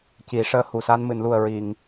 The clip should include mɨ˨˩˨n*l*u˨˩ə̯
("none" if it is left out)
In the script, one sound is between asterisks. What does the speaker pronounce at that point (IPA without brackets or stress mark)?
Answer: l